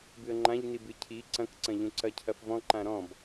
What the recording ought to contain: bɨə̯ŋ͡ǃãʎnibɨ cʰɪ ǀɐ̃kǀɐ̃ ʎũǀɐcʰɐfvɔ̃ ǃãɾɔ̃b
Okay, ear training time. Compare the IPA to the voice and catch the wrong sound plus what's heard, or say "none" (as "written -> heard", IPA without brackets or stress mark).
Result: ɪ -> i